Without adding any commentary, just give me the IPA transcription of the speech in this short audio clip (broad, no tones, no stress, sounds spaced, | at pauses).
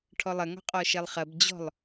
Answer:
ʈʰ ɔ lˠ ɐ ŋ ɔ̤ qʼ ɔ ʃ ɛ lˠ χ ɐ b d͡ʑ ɔ̤ lˠ